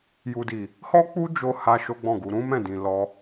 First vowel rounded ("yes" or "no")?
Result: yes